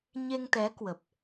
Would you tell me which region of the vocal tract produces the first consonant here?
palate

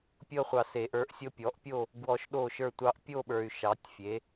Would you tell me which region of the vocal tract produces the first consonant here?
lips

